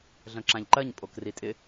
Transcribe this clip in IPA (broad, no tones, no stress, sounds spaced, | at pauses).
ɮ œ̃ ǁ ã ʎ ǃ ɜ ɲ pʼ o k r i tʼ ɪ